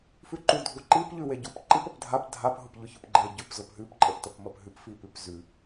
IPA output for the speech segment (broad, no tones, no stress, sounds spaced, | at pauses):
f ʉ ǃ u dʱ u ǃ i p ʎ ʉ w e ɟ u p ǃ i p ə p dʱ a p dʱ a p ɦ ʊ p ʎ ʊ ç ʊ p ɡ͡ǃ e ɟ ʉ p z ʊ p ɦ ʉ p ǃʼ ə p t ə p m ə p ɦ ʉ p f i p ʉ p z ʉ